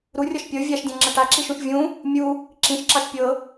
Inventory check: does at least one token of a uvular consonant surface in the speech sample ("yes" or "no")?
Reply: no